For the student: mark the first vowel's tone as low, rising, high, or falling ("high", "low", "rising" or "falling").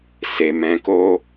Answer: low